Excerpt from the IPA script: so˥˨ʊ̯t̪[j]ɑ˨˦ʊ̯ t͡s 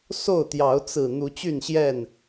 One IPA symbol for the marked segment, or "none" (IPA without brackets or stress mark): j